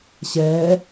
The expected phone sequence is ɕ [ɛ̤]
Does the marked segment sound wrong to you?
yes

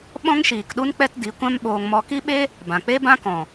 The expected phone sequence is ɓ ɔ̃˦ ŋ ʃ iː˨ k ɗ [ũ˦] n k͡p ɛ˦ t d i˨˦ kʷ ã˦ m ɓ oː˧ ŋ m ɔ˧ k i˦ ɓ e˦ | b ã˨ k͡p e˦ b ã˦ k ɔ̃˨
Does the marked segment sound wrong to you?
yes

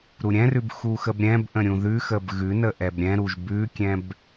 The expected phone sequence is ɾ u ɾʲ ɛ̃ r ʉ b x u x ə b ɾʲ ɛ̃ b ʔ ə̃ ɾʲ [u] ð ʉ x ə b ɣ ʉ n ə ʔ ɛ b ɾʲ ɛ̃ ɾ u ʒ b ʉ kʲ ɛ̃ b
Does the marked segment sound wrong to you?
yes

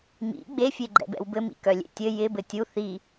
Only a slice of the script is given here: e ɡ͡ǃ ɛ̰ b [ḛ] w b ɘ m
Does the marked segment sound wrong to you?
yes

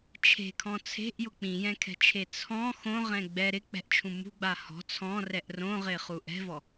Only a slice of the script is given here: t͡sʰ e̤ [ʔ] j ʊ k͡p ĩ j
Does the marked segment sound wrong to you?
no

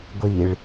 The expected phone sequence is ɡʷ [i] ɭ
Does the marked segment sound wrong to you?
no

